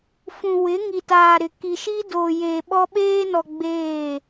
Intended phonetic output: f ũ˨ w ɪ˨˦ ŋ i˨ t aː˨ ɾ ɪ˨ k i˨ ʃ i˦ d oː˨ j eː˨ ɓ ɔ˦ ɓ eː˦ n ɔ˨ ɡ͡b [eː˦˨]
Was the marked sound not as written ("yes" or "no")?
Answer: no